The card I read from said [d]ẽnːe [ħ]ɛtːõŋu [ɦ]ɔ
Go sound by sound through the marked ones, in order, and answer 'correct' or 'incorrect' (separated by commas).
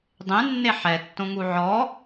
incorrect, correct, incorrect